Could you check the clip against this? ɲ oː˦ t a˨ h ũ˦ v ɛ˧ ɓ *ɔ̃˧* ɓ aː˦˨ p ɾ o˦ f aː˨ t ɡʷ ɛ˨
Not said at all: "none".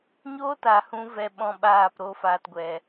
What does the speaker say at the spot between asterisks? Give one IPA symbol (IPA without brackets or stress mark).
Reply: ɔ̃˧